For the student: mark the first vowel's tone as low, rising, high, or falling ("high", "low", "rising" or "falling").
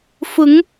rising